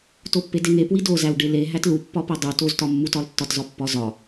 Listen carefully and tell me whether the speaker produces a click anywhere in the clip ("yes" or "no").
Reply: no